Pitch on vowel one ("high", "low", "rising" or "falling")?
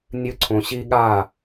high